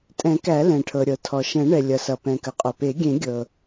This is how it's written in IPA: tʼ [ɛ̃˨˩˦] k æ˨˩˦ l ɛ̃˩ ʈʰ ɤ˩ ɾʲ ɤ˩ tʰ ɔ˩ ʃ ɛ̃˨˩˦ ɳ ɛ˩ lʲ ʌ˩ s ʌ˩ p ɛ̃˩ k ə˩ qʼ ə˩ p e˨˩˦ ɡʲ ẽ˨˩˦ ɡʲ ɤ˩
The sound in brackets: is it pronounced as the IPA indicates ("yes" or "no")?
yes